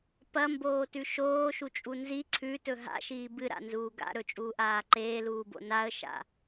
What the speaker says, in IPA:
p ɐ m b oː t ʉ ʃ oː ʃ u t͡ʃʼ u n z i ǀʰ ʉ t ɵ ɦ a̰ ʃ iː b ɨ ɾ a̰ n z uː ɡ a̰ ɾ ɵ t͡ʃʼ uː ʔ aː ǃ eː l uː b o̰ n a ə̯ ʃ a̰

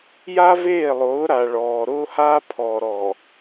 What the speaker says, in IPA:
j a˦ v eː˦˨ lˠ ʊː˨˦ ɾ a˨ ɭ ɔː˨ ɾ ʊː˦ h aː˦ pʰ ɔː˨ ɾ ɔː˨

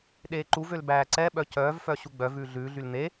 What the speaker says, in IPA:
ɗ eː ǃ u v ø l b æː ǀ ɛ ɓ œ c œː v f œ ɕ u ɡ͡b œ v ʉː ɮ ʉː ɮ y l n̪ e

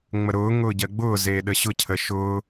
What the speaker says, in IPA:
ŋ͡m ə ɾ ʊː ŋ ʊː ɟ ɜ ɡ͡b ʊː z eː ɗ ə ɕ ʊ cʰ ə ʃ ʊː

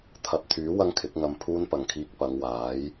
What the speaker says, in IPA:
t̪ʰ ɐ˨ p̚ t̪ʰ yː˨˥ w ɐ˥ ŋ kʰ ɪ˨˥ k̚ ŋ ɐ˧ m pʰ uː˥ n p ɐ˨ ŋ kʰ iː˧ k̚ p ɐ˨˧ ŋ w aː˨˥ j

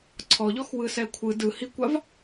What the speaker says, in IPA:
ǀʰ ɔ ʎ ɔ x w ɯ s ɛ kʷʰ ɯ d ɯ h i kʷ a v

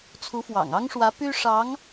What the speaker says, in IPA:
t͡sʰ u˧˥ f w ɑ̰˨˩ ŋ ɑ˥ ŋ ʂ w ä˧˥ p y˥ ʂ ɑ˧˥ ŋ

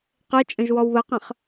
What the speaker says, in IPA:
q e t͡ʃʼ ə̃ ʒ w ɔ w β ə q ə̃ χ

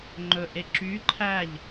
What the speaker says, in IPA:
ŋ͡ǃ ɵ ʔ e ǁ y ǃʰ æ ʎ

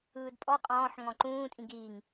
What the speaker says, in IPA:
ɯː d pʼ ɔ qʼ ɔ̃ː ħ ŋ ɔ̃ ǃ ũː tʼ ĩ ɡ iː ŋ

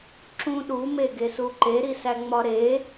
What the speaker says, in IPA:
ǁ ũ ɗ u m e ɡ e s u ǃ e ɾ i s æ ŋ͡m ɒ ɾ e

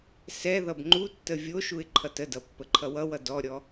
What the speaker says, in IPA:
s ɛ ð ʌ b ŋ͡ǃ u tː ə vʲ o ʃ u ɪ̯ ǃʰ ʌ t ə d ʌ pː ə ǃʰ ʌ w ʌ w ʌ d ɔ ɾʲ ɔ

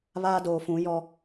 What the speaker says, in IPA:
β aː˦ d oː˨ f ũ˨˦ j ɔ˦

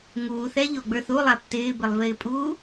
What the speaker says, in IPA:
ŋ uː θ ɛ ʎ o ɡ͡b ə˞ θ u lˠ a p t ɪː b ɪ lˠ v ɪː pʼ uː

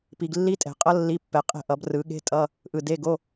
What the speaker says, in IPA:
p i˨ ɡ lː i˦˥ tʼ ɛ̤˨˩˦ qʼ ʌ˦˥ lː i˧˥˧ pː ɛ˨ qʼ ɛ̤˦˨ ʔ ʌ˨˩˦ b r ɯ˨˩˦ ɠ e̤˧˥˧ tʼ ʌ˧˥˧ | ʔ ɯ˨ d e˧˥˧ ɡ o˧˥˧

